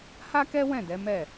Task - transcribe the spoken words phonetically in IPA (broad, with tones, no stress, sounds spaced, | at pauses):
h a˦ k ɛ˦ w ɛ̃˦˨ d ɛ˨˦ m ɛ˦˨